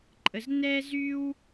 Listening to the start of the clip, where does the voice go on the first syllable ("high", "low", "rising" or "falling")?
low